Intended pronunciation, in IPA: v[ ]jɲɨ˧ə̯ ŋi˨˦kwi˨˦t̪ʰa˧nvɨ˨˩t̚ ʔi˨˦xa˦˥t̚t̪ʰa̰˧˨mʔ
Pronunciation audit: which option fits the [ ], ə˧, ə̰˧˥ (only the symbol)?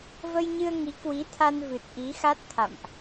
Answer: ə˧